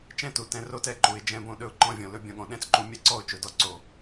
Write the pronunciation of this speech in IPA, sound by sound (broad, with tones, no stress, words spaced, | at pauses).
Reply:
t͡ʃɛ̃˦tu˨ tɛ̃˧ro˦tɛ˦˨ ǃu˨ɪ̯ d͡ʒɛ̃˧bõ˧ ɗɵ˧ʊ̯ǃɔ̃˧vʲɔ̃˨lɵ˧ bʲɔ̃˧ɠɔ̃˨ ɗɛ̃˦t͡sǃu˧ mʲɛ˦ ǀɔ˦˨ʊ̯ t͡ʃɵ˨˦dɔ˦ ǀo˨